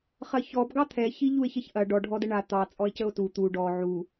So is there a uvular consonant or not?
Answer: yes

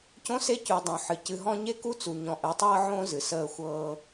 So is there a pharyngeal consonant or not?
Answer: yes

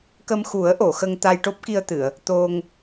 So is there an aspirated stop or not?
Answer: no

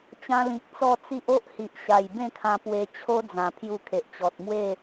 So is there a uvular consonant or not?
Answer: no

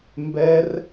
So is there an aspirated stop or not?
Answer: no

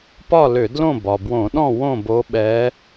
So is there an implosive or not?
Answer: yes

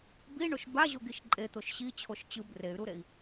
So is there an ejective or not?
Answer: yes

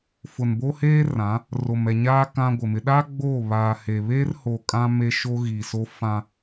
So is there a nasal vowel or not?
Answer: yes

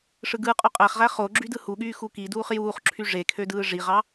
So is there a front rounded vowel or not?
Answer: yes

